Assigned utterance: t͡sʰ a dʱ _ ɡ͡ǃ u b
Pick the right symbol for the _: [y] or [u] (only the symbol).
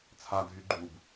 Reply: y